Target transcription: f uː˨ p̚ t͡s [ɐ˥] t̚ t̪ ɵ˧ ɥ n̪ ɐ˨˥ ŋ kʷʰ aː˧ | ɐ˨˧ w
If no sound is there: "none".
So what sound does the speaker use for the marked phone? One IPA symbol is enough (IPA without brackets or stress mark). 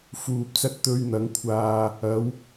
ɐ˧